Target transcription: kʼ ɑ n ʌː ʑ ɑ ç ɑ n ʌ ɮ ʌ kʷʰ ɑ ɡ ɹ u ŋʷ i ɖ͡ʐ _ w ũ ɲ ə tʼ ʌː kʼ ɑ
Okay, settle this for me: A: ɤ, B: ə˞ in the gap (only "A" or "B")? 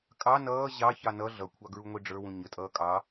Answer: B